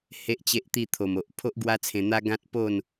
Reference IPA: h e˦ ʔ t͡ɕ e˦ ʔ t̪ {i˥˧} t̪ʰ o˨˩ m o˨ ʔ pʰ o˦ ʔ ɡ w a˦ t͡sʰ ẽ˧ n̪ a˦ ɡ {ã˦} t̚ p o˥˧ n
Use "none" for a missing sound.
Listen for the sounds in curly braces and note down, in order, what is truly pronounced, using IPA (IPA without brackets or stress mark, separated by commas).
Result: i˥˧, ã˦